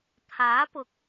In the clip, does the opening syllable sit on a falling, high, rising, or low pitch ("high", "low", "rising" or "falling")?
rising